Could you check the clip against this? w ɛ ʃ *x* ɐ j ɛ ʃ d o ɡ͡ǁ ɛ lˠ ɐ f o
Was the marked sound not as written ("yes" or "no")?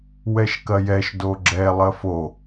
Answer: yes